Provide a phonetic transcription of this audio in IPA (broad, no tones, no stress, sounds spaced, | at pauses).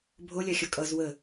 bʱ o lʲ a xʲ ʌ kʼ ʌ z w ə